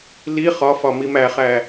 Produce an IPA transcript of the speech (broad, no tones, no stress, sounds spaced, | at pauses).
l i χ ɒ f ɒ m i m æ χ æ